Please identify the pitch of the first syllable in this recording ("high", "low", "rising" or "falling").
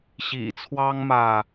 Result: low